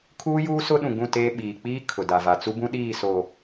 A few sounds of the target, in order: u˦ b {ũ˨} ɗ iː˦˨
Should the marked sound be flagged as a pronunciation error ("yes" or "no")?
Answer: yes